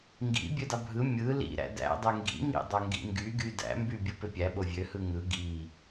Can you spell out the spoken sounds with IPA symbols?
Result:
ŋ ɡ ḭ bʲ ø d ɑ bʱ ɯ mʲ ɯ l ḭ ɾ æ̰ d æ̰ dˤ y ŋ ɡ ḭ ŋ ḭ dˤ o ŋ ɡ ḭ ŋ ɡ y ɡ y d æ̰ m b y bʲ ɯ p ø pʲ æ ɓ o vʲ ø h ɯ ŋ ɯ ɡ i

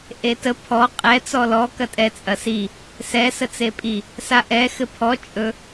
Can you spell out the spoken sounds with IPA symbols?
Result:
ʔ e t ə pʰ ɔ qʼ ɛ t͡s ɔ l ɔ k ɐ tʼ ɛ t͡sʼ ɐ s i | s ɛ s ə t͡s e pʼ i | s a ʔ ɛ x ɘ pʰ ɔ t͡ʃʼ ɵ

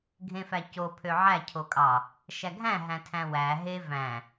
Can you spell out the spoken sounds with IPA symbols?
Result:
ɡʱ ẽ f æ c o pʰ ø ʕ æ cʰ o kʼ ɑ | ʃ æ ɡʱ æ̃ ɦ æ̃ tʰ æ̃ w æ ɦ e v æ̃

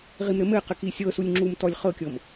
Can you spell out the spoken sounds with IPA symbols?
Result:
ʁ i m ɾ ɘ m ɘ q ɘ k i sʲ ɤ s u lʲ ŋ͡ǁ u m t ɔ lʲ χ ɤ kʲ ɤ m

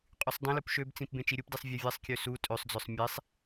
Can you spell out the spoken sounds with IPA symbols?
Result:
qʼ y sˤ dˤ ĩ l u p ʃ ø b t͡s ĩ p b ẽ t͡ʃ i ɾʲ u p d i sˤ vʲ e vʲ e sˤ kʲ ø s u tʼ ø sˤ d͡z œ sˤ mʲ e sˤ

